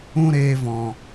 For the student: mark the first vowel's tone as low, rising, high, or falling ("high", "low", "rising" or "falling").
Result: high